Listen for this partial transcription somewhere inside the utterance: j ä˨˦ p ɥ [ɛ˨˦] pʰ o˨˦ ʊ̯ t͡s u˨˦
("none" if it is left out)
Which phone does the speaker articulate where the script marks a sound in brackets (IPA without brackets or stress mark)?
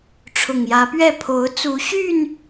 ɛ˥˨